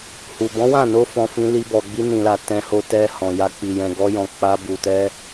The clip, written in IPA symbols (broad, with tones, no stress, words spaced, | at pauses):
hu˨ bɔ̃˨˦wã˦˨no˧fɔ̃˨ fĩ˧li˧ bɔ˨ɡ͡bi˧nĩ˨la˨ tɛ̃˧ho˧tɛ˧hɔ̃˨ ja˧ k͡pi˨jɛ̃˨ɡɔ˧jɔ̃˨ k͡pa˧bu˨tɛ˧